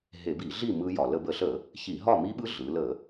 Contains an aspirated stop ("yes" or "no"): no